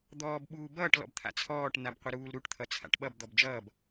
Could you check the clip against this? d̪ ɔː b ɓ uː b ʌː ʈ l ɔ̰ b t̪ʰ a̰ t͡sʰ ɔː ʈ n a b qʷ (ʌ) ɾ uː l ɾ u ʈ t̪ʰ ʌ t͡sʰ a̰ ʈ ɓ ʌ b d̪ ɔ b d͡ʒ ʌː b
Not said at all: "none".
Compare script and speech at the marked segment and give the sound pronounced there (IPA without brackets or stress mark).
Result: ʌ